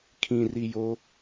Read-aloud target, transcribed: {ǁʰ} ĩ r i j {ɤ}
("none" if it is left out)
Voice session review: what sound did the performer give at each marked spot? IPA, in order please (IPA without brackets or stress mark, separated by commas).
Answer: kʰ, o